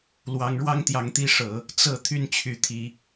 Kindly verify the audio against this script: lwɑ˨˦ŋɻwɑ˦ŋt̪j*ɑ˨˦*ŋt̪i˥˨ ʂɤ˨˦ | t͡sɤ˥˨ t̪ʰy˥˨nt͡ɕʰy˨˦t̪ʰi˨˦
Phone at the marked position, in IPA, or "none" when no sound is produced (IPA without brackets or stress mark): ɑ˨˦